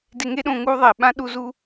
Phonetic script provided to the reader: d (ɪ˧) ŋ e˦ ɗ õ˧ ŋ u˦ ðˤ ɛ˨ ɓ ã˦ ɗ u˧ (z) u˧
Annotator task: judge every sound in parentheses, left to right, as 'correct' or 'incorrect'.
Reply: correct, correct

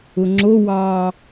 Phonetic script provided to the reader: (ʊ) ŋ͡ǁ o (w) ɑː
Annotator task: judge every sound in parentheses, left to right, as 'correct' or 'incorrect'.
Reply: correct, correct

